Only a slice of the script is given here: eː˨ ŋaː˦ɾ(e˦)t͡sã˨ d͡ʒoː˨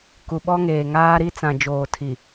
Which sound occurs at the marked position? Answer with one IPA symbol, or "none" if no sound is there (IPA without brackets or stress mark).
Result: i˦